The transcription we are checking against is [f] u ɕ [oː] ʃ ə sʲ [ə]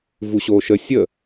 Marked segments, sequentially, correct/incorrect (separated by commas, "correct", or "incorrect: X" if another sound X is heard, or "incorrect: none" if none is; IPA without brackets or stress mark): incorrect: v, correct, correct